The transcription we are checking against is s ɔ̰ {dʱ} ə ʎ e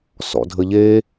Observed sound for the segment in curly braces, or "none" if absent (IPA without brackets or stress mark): dʱ